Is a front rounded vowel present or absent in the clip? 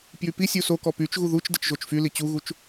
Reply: present